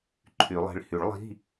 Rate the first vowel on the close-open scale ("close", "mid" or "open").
close